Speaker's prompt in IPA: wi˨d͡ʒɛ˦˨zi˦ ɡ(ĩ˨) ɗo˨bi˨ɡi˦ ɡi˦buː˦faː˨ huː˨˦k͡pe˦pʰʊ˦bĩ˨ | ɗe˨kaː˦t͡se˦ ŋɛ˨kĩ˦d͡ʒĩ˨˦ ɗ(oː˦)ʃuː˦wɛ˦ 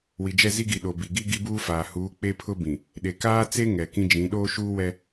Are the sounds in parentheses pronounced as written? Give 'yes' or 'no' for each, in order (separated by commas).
no, yes